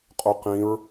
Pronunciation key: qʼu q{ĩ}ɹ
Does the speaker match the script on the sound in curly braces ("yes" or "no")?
yes